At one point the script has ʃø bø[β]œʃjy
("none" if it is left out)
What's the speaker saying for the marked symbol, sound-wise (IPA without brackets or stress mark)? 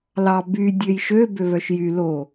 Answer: β